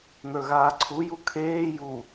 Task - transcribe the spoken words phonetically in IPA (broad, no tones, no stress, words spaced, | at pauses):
nə˞ɣaːǀʰu jukʰeː ju